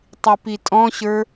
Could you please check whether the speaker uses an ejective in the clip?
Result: yes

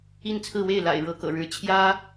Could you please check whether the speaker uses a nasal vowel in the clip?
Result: no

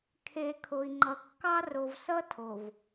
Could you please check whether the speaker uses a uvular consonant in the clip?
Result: no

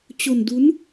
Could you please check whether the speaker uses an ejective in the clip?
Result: no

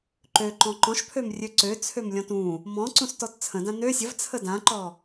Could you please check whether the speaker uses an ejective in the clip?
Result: no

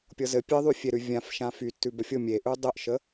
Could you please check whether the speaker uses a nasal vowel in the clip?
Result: yes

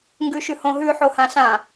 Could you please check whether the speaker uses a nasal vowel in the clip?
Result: yes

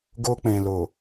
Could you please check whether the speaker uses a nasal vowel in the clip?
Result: yes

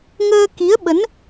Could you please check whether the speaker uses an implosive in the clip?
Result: yes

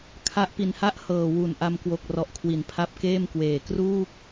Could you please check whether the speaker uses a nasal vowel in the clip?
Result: no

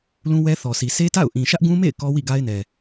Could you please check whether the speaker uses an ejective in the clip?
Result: no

